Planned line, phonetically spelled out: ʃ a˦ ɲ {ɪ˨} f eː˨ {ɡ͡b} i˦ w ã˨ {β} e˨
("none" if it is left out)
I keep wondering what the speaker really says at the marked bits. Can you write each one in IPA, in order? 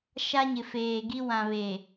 ɪ˨, ɡ, β

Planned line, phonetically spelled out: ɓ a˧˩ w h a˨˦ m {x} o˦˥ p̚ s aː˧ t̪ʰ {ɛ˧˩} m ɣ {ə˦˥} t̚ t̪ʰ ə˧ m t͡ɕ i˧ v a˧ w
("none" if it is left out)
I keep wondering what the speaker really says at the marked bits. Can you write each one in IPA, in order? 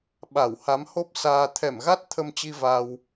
h, ɛ˧˩, a˦˥

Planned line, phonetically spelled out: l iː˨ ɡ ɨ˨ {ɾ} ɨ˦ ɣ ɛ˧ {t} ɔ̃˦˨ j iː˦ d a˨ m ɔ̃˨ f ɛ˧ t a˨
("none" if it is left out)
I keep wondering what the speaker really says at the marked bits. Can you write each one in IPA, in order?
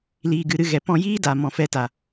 ɾ, p

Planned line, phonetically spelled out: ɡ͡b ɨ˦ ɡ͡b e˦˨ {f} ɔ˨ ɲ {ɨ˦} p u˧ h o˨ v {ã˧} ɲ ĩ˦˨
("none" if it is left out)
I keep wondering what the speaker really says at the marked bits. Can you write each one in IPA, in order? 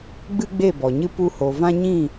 b, ɨ˦, ã˦

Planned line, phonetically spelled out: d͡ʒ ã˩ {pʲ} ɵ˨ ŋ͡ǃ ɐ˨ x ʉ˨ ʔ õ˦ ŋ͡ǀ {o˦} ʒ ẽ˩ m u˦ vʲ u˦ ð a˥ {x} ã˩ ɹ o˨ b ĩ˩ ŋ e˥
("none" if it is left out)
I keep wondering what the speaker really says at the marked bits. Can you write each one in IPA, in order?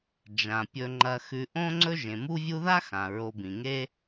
pʲ, ɵ˦, x

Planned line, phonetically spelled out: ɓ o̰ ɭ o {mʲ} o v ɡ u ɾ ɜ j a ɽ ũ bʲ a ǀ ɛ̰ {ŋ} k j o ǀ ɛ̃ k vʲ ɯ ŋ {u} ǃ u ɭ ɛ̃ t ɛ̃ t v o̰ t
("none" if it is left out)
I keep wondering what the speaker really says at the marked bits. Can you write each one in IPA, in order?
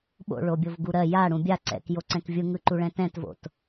bʲ, none, ɯ

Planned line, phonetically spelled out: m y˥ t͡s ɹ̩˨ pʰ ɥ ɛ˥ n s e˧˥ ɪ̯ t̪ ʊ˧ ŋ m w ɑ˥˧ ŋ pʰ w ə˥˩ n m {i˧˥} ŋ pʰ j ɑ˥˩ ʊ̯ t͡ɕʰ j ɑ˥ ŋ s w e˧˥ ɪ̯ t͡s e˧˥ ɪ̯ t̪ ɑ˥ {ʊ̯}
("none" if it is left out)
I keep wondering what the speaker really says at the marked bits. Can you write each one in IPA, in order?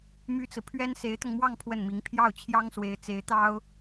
i˧˥, ʊ̯

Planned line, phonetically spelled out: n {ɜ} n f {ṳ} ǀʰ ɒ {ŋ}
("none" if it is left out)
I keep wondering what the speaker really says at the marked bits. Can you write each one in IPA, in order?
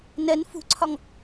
ɜ, ṳ, ŋ

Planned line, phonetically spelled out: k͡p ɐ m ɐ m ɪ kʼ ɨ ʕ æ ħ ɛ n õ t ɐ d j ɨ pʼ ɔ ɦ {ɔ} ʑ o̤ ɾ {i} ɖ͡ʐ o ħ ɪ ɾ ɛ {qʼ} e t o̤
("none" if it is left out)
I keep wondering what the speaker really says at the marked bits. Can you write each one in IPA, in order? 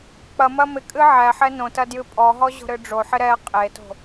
ɔ, ɨ, qʼ

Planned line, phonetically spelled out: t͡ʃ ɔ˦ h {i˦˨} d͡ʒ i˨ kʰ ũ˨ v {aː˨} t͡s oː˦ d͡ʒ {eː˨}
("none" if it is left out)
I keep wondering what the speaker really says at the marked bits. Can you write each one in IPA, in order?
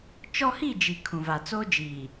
i˦˨, a˨, iː˨

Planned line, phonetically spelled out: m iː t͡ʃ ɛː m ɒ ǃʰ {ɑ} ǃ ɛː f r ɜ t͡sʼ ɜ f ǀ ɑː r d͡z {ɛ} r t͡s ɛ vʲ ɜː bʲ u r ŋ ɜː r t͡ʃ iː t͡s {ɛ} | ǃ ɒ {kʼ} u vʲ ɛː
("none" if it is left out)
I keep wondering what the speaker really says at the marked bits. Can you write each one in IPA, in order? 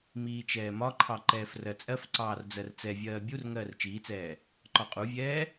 ɑ, ɜ, ɛː, qʼ

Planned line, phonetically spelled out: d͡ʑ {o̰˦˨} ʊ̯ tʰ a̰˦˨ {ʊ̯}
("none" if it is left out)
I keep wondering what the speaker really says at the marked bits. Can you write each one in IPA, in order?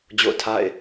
o̰˦˨, ɪ̯

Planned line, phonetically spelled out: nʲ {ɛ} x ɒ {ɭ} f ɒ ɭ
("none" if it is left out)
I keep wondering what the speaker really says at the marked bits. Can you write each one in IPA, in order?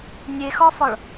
e, none

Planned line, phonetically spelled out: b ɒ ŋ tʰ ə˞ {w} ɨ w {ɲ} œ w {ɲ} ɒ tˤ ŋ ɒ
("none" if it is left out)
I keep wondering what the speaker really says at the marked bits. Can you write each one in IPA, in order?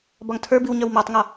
b, ɲ, m

